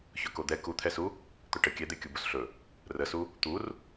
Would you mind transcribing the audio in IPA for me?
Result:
ç ɵ k o d̪ ɛ k u t̪ʰ ɛ s u | t̪ ɵ ʈ ə kʲ ɛ d̪ e kʲ u b u s ɬ ɵ | r ə s u | t̪ u r

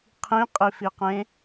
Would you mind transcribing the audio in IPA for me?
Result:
qʰ ĩ qʼ i f i q ẽ

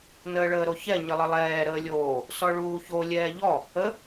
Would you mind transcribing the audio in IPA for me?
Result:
n əː ɭ əː ɾ o ç ɛ ɲ ə lˠ ə lˠ ɛː ɾ əː lʲ oː | s ɔ ɭ uː ç o lʲ ɛː ʎ ɔ | ə

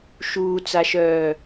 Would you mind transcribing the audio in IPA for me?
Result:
ʃ uː t͡s a ʃ œː

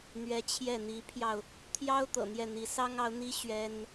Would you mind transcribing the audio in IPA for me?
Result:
n̪ ɥ ɛ˧˥ t͡ɕʰ j ɛ˥˩ n̪ i˧˥ pʰ j ɑ˧ ʊ̯ | t̪ʰ j ɑ˥ ʊ̯ t̪ ɤ̰˨˩ n̪ j ɛ˥˩ n̪ i˧˥ s ɑ˥ ŋ ɑ˧˥ ʊ̯ n̪ i˥ ɕ ɥ ɛ˥ n

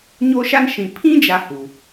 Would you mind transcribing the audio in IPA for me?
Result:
ɲ o˦ ʃ a˦ n ʃ ĩ˨ pʰ ĩ˦ d͡ʒ a˦ h u˨

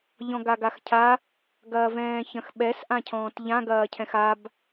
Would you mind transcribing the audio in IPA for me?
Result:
ʎ ɔ̃ ɡ a ɡ a x cʰ a | ɡ ɐː v ɛ̃ː ç ɐ̃ x ɓ ɛ s ʔ ã cʰ ɔ̃ː t ʎ ã ɡ ɐː cʰ ɛ̃ x a b

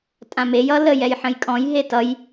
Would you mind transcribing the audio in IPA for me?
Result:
tʼ ã m e j ʌ l ə j ɛ j ħ ə̃ j kʼ ɔ̃ j ɦ e t ʌ j

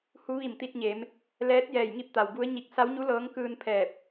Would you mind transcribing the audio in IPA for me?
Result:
h u˧˥ ʋ i˧˩ m t̪ i˧ t̚ ɲ e˩˧ m | l ɛː˧˥ t̚ j ɛː˧˩ j ŋ i˥˨ p̚ t̪ a˩ w b u˧˥ ə̯ ɲ i˧˩ k̚ s a˧˥ w ɲ u˧˥ l ɤː˧˥ ŋ k ɯː˧ n pʰ ɛː˧˩ p̚

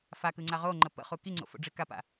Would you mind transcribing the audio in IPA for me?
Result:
f a k ɯ ŋ͡ǀ a ʁ o ŋ͡ǃ ə p ə̰ χ u k i ŋ͡ǀ o̰ f o̰ ɖ͡ʐ i k a p a̰

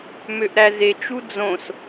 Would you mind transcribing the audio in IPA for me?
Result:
m ø ʔ ɾ æ z e t͡ʃ u d͡z õ s

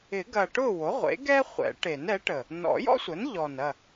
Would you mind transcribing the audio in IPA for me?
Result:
ɪ˨˩˦ ɡ ɐ˨˩ ʈ ʊ˥˨ w o˩˥ ʁʷ ḛ˩˥ ɡ ɛ˥ χʷ ɛ̰˨˩˦ ʈ e˨˩˦ n ɛ˩˥ ʈ ə˨˩ | n ɔ̰˨˩˦ j ɔ̰˥ sʷ ə˩˥ n ʎ ɔ˨˩ n ɐ˥˨

